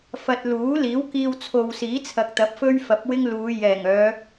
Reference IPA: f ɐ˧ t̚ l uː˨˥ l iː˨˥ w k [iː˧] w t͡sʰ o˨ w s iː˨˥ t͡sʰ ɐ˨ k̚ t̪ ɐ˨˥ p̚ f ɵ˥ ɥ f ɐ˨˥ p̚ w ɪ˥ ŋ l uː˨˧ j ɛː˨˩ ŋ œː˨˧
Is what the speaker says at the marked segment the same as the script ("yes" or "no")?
yes